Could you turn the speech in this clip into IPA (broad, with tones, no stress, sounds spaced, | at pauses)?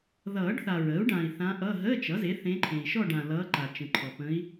ð ʌː˨˩˦ ɖ θ a˨ ɹ əː˩˥ u̯ ɖ ã˨ i̯ θ ã˧˥ ʔ ʌ˧˥˧ ɦ əː˧˥˧ t͡ʃ ʌ˩˥ z e˩˥ θ ẽ˧˥ ǃʰ ẽ˨ i̯ ʃ ɔ˥˧ ɖ ã˨ l ʌː˧˥ ǃ a˨ t͡ʃ ə̃˨ ǃʰ ɔ˨ p ə̃˧˥ i̯